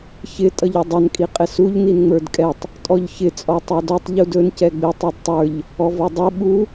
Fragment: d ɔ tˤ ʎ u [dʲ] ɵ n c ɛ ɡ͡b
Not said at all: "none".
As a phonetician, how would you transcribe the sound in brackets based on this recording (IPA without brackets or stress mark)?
d